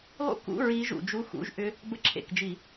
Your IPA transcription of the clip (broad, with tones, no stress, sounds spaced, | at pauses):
lˠ ṵ˥˩ k ṵ˧˥˧ ɹ i˦˥ ʒ ṵ˧˩˧ d͡ʒ u˧˥˧ x ṵ˧˥˧ ʒ ʔ ʏ˦˥ | b ə˦˥ ǁʰ ḛ˥˩ k d͡ʒ i˧˩˧